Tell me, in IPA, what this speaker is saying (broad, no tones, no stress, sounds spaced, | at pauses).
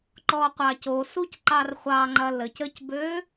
ǃ ɔ qʷ ɑ c o s u c ǃ ɑ r χʷ ɑ ŋ͡ǃ ɐ l ə c ə c b ø